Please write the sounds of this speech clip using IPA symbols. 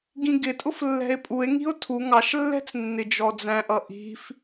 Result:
ɡ ĩ ɡ ɪ tʼ ʊ f lː ɛ̤ e̯ pʼ u e̯ ŋ i̤ o̯ tʰ u ŋ ɑ ʃ lː ɛ̤ t͡s nː ɪ d͡ʒ ɔ d͡z æ̃ ʔ ʌ ʔ i̤ f

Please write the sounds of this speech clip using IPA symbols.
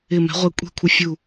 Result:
ɪ˧˩ m ɛ̤˨˥ ʁʷ ɛ˧˩ kʷʼ ɛ̤˥˨ kʷʰ ɪ˧ fʲ u˧˩

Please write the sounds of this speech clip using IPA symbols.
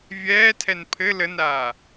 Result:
vʲ ɛː tʰ ɛ n pʰ ɘ l ə n ɾ aː

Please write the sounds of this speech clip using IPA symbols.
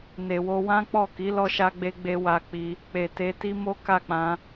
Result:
n e˨ w o˧ w ã˦ k͡p ɔ˦˨ k i˨˦ l ɔ˧ ʃ a˧ ɡ͡b e˧ ɡ͡b e˧ w a˧ k͡p i˧ | k͡p e˨ t e˧ t i˦ m o˦ k a˦˨ k͡p ã˧

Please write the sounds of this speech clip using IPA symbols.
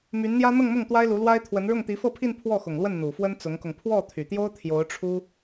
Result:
m y˧˥ n n̪ j ä˥ n̪ ɤ˥˧ ŋ m ʊ˥˩ ŋ t̪ w a˥ ɪ̯ l u˧˥ l w a˥ ɪ̯ t̪ʰ w ə˧˥ n ɻ ʊ˥˩ ŋ t̪ i˧˥ f ɤ˥˧ pʰ i˥˧ n pʰ w ɔ˥˩ x ʊ˨˩ ŋ l w ə˥˩ n n̪ u˨˩ f w ə˥ n t͡s ʊ˧˥ ŋ k ʊ˧ ŋ pʰ w ɔ˥˩ t̪ʰ y˨˩ t̪ j o˥ ʊ̯ t̪ʰ j o˧˥ ʊ̯ ʈ͡ʂʰ u˥

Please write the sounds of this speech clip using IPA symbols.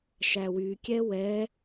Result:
ʃ æ w y kʲ ɛ w ɛ

